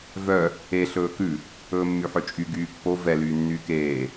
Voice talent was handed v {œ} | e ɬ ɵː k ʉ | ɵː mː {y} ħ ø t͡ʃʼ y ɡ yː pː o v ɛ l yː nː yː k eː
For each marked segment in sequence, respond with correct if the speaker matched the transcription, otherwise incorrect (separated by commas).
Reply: correct, correct